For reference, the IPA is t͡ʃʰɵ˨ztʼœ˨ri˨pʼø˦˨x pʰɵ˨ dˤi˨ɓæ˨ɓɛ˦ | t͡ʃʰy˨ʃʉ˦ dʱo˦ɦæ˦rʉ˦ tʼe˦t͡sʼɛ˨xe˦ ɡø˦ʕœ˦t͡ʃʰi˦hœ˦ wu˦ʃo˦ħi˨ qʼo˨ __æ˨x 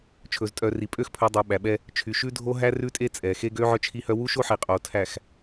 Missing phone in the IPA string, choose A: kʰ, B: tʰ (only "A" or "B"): B